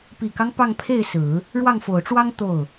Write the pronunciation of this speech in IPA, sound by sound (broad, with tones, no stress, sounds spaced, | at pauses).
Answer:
p i˨˩ k ɑ˦ ŋ p ɑ˥˧ ŋ pʰ e˥˩ ɪ̯ s ɹ̩˨˩˦ | ɻ w ɑ˥˩ ŋ f o˨˩ ʊ̯ ʈ͡ʂ w ɑ˥ ŋ t̪ o˥˩ ʊ̯